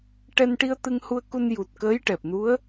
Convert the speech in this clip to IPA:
ʈɛ˧nʈi˧ə̯t̪ɨ˧ŋhu˧ə̯ ku˧nju˨˩t̚ kəː˧˥jʈɛ˨˩p̚nu˧˥ə̯

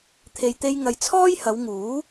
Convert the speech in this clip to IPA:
t̪ʰe˨jt̪e˧j ŋɐ˨jt͡sʰɔː˥jhɐ˨˧wŋuː˨˥

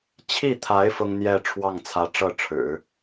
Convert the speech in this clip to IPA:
t͡ɕʰi˥˩t̪ʰa˧˥ɪ̯ fʊ˥ŋn̪jɛ˥˧ ʈ͡ʂʰwɑ˥˩ŋt͡sʰä˧˥ ʈ͡ʂɤ˥˩ʈ͡ʂʰɻ̩˨˩˦

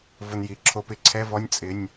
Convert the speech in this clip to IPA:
vʊ˧nji˩˧ ǁʰo˧pɪ˧˥˧ǀʰɛ˧˥˧vɔ˧˥˧nʲ t͡sʼɪ˧˥˧nʲ

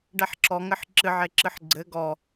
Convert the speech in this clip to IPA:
ɖɛħǁɔŋɘħ ǁɨʕeǁɨħ ɡ͡ǀɘ ɡɔ

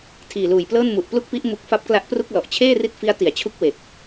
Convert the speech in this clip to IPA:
tʰiː˨˩luː˨˩jplɤː˥˩n mu˨˩ʔplu˥˩k̚pi˦˥ʔ mu˦˥k̚ fa˦˥p̚kla˦˥ʔpru˥˩k̚ lɔ˨˩ʔt͡ɕʰeː˥˩ri˦˥t̚ fi˦˥a̯ti˨˩a̯t͡ɕʰu˦˥k̚ we˨˩k̚

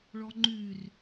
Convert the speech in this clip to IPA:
ɭɔŋ͡ǃyr

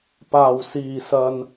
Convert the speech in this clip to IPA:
paː˨˩wsiː˨˩sɐ˨n

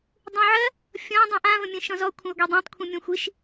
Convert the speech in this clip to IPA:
dˤũʕɜ | fʲɔ̃ dˤũʔãvə̃ mʲə̃ʃɔ̃zɔ kʷʰə̃y̯ɡʷidˤũtˤkʷʰĩ mʲɔ̃xʷiʃ

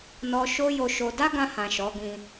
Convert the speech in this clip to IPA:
nɔ˦ ʃo˦jo˧ʃo˧ da˦ɡã˧hã˨ ʃɔ˨˦ɡĩ˧

